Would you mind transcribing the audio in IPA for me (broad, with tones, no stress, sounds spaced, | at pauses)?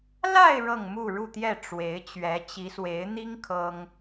l a˥˧ ɪ̯ ɻ ɤ˥˧ ŋ m u˥˧ ɻ u˥˧ t̪ j ɛ˥˩ ʈ͡ʂ w e˧˥ ɪ̯ t͡ɕ ɥ ɛ˧˥ t͡ɕ i˧˥ s w e˧˥ ɪ̯ n̪ i˥ ŋ kʰ ɤ˥ ŋ